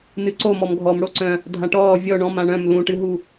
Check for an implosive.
absent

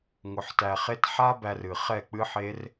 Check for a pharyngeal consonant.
present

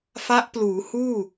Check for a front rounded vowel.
absent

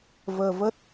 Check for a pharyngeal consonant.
absent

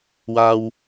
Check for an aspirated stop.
absent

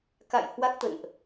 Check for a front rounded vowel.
absent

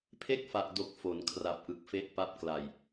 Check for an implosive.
absent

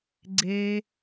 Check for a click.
present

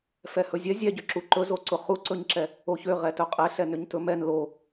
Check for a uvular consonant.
present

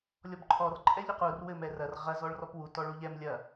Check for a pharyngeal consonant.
absent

